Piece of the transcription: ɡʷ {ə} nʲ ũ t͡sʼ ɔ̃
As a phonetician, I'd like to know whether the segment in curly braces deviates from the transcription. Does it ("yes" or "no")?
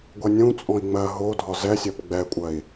yes